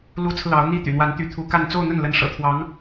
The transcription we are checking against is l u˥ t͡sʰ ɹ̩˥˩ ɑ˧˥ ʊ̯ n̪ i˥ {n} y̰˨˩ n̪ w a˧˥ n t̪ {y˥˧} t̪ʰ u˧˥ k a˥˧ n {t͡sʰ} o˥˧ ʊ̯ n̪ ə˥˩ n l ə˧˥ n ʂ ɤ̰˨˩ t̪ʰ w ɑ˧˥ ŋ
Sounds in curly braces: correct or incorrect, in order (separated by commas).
incorrect, incorrect, incorrect